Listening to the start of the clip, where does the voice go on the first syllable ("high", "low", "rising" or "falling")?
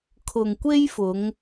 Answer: low